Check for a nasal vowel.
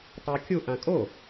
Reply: present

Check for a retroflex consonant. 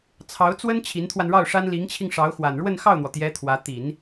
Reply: present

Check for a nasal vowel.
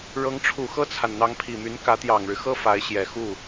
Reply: absent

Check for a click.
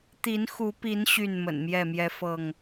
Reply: absent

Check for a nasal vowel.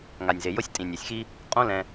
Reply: present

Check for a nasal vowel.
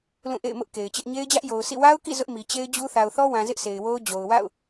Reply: present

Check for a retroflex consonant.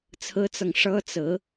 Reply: present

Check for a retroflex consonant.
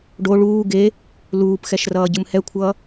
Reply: present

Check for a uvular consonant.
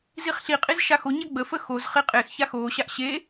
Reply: present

